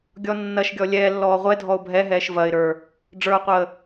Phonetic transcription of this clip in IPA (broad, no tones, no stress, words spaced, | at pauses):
ɡʲɔnːɐʃɡʲɔ lʲɛ lːɔːʁʷɛ dʱɔʊ̯bʱɛɦɛːʃ vɐɪ̯ɾə˞ | ɖ͡ʐə˞ʊ̯qʷəː